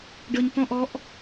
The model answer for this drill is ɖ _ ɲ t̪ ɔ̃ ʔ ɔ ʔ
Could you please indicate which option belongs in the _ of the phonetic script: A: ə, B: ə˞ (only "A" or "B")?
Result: A